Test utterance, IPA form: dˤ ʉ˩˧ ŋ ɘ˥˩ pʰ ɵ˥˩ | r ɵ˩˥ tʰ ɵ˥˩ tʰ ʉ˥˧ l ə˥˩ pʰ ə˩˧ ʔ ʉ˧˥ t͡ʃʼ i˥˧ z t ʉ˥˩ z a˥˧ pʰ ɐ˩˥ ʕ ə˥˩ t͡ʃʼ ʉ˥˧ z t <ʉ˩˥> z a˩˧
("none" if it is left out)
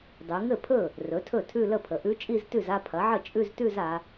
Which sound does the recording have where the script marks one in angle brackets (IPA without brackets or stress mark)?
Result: ʉ˥˧